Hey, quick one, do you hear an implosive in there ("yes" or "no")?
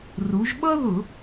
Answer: yes